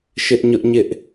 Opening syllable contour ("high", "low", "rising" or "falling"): high